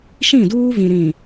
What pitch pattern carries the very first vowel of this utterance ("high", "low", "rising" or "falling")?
falling